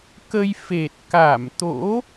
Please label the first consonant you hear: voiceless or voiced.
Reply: voiceless